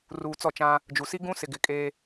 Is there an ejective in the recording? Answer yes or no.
yes